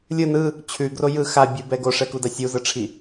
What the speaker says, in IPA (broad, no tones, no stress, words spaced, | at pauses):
lʲɯ nɯ | t͡ɕʰʉɡro jɯ xa bʲubɛ ɡoʂɛkuda sʲuzɯʈ͡ʂʰi